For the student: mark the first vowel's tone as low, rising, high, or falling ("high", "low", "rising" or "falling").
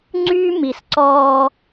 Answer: high